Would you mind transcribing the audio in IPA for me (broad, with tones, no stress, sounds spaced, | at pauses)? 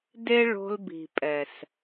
d e˦ ɭ o̤˧ l b i̤˨ pʼ ɛ˨ s